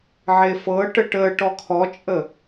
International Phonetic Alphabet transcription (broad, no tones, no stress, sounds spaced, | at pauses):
ʕ e f ɤ ʈ ə ʈ ə ʈ ɔ kʰ ɔ t͡ʃʼ ə